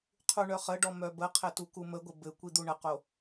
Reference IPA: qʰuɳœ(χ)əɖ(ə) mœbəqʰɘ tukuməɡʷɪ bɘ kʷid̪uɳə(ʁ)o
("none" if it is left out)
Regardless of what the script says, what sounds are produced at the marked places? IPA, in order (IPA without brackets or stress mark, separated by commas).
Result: χ, ɔ, q